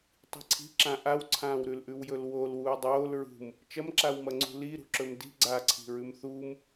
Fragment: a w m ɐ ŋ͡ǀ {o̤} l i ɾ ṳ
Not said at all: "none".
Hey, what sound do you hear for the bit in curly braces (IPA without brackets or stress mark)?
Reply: ṳ